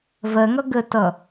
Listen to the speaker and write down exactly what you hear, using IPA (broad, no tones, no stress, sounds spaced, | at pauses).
v ɜ ŋ ʌ ɡ ə t ʌ